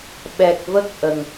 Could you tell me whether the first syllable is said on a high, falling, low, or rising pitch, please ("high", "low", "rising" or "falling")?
low